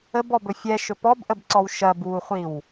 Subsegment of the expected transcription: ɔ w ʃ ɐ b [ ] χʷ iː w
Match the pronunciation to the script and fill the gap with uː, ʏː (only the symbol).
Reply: uː